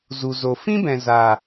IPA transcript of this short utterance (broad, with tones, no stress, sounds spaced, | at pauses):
z u˨ z o˨ f ĩ˦ b ɛ̃˨ z a˨